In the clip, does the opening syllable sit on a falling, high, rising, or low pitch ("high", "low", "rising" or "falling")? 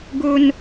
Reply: high